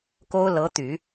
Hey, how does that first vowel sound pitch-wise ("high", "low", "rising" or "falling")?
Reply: high